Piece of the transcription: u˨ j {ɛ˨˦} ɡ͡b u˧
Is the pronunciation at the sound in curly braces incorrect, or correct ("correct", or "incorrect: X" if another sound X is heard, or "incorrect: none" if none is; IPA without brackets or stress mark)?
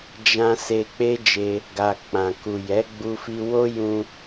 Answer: correct